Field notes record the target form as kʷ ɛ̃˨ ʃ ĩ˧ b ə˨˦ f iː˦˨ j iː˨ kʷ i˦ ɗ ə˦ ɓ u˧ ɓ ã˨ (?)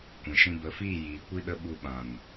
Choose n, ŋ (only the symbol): n